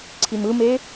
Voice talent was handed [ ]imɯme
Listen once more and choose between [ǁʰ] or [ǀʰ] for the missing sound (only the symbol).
ǀʰ